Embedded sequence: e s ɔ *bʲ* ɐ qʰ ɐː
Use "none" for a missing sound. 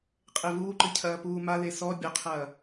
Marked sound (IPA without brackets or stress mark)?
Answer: bʲ